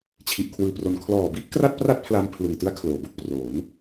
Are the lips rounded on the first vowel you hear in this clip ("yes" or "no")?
no